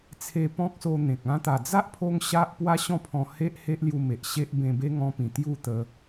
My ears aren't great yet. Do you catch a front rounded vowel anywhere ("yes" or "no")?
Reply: no